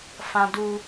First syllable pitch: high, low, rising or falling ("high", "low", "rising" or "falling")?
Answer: high